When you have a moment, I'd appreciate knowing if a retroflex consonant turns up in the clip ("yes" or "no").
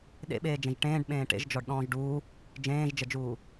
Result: yes